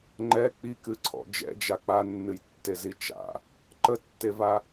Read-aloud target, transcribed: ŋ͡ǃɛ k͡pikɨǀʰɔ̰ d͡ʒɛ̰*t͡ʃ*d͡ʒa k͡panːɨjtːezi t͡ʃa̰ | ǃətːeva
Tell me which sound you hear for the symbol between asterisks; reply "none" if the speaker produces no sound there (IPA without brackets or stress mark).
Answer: none